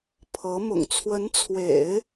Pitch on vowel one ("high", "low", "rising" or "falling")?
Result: rising